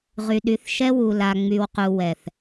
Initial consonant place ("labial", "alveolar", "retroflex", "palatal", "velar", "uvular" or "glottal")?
uvular